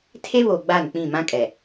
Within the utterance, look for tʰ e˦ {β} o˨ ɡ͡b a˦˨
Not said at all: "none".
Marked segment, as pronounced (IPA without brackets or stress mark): β